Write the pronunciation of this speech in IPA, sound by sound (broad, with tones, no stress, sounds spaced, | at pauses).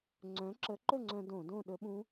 ŋ͡ǀ œ̃˨˥ ǁ ə˨˥ ǃ ɵ˥˨ ŋ͡ǀ œ̃˧ d õ˧˩˧ d õ˥˨ ɗ ɵ˦˥ ɓ ũ˦˥